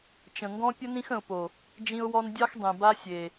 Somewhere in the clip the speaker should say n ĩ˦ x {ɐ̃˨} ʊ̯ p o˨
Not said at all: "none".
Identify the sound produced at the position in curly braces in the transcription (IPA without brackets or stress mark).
ə̃˨